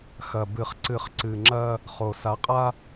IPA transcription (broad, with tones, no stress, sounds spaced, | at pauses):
x ɐ˨ b ɨ˨ χ ǀ ɨ˨ χ ǀ ɨ˨ ŋ͡ǁ ɐ˦ | χ o˨ s a˨˦ qʼ a˦